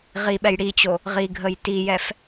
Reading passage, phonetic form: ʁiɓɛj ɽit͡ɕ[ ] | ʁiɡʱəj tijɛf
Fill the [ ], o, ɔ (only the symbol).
o